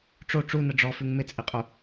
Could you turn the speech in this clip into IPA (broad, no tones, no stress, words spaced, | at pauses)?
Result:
ʈ͡ʂo ʈ͡ʂunə ɖ͡ʐɔfʉŋ mɪt͡sʼiqʼu